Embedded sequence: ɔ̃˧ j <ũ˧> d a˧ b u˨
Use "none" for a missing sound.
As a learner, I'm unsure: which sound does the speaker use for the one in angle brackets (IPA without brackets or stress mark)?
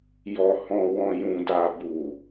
ũ˧